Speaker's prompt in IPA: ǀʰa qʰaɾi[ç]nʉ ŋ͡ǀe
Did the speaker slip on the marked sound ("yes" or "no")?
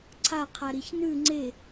no